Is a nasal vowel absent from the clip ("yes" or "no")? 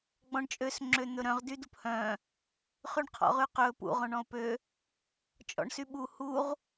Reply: no